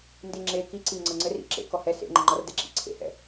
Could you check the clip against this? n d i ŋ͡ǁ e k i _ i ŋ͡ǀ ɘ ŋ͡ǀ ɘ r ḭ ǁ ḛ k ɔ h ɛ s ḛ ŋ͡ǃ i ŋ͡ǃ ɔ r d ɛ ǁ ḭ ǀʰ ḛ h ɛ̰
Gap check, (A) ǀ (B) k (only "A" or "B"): A